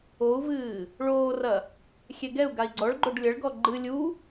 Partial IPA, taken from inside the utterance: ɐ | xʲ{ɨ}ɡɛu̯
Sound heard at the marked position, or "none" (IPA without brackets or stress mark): ɛ